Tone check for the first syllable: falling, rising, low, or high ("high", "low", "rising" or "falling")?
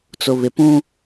low